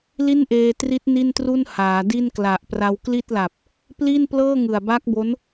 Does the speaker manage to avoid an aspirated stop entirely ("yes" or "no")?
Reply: yes